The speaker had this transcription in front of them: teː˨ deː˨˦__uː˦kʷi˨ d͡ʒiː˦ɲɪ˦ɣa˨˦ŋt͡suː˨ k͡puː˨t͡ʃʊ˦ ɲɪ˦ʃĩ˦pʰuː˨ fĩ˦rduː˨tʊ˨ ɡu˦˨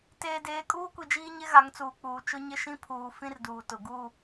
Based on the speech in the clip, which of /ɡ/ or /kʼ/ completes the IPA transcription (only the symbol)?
kʼ